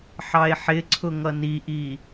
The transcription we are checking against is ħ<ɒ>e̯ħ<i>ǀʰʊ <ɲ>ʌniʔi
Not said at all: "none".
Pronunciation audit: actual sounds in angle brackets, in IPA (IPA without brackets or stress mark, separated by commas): ɑ, ɪ, ŋ